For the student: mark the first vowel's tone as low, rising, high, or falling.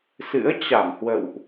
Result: rising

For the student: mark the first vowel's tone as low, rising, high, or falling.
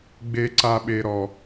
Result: high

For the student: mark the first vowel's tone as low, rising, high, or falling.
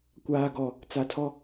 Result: low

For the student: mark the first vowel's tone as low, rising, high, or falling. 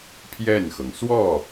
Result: falling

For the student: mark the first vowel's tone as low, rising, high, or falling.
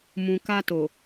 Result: low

